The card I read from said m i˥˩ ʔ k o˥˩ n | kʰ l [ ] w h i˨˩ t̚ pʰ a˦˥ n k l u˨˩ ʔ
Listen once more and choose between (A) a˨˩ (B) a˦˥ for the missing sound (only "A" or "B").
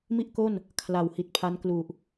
A